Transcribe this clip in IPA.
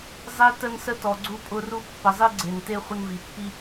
zˤ e˧ t ə˧ n s ə˧ t ɔ˩ ɡ͡ǀ u˧ pʼ ʊ˧ r u˧ pː ə˩ zˤ i˧ ɡ͡ǀ e˩ n t e˧ χʷ ə˧ n v i˩ pː i˧

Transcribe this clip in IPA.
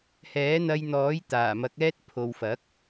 h ɛː˨˥ n̪ ɐ˧ j n̪ ɔː˨˥ j t̪ aː˨˩ m ɐ˨˥ k̚ ɛː˥ t̚ pʰ o˨ w f ɐ˨˥ k̚

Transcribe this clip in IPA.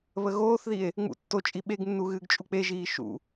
β ə ɣ oː θ ð i e̯ | ŋ͡m ṵ tː o t͡ʃʼ i ɓ e ɡ nː u ɣ ɨː ɡ t͡ʃʼ u k͡p e ʒ iː ʃ ṵ

